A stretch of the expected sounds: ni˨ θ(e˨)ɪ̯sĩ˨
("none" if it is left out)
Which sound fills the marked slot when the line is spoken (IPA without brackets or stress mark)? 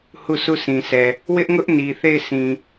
e˦˨